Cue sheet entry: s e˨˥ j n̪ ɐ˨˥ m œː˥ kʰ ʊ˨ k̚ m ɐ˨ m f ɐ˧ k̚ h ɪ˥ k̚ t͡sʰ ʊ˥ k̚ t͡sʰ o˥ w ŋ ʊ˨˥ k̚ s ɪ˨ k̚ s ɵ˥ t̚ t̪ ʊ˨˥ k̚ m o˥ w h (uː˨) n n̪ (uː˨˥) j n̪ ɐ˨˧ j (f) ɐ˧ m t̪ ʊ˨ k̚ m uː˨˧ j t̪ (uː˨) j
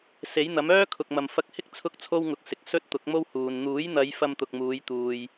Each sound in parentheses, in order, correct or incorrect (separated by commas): correct, correct, correct, incorrect